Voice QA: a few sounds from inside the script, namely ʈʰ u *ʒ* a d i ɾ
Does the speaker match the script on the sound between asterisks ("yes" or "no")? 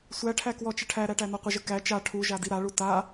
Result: yes